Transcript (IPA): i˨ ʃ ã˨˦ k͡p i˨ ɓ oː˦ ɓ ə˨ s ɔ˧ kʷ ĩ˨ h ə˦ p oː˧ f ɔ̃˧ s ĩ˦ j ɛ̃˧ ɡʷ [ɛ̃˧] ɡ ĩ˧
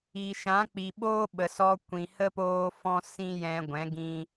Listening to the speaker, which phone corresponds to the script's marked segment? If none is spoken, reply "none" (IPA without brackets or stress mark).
ɛ̃˨˦